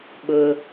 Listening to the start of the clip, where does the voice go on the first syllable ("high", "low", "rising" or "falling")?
low